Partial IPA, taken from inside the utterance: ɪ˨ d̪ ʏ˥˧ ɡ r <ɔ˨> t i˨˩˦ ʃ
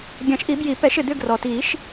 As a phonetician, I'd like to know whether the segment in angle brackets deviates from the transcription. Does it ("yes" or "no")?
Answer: no